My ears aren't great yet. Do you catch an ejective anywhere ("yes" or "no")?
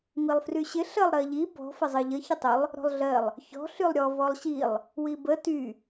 no